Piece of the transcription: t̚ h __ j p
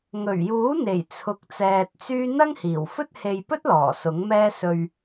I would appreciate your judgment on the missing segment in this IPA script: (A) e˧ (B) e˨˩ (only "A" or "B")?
A